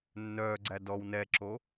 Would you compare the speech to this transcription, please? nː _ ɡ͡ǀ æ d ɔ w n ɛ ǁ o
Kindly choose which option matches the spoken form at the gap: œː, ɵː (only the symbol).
œː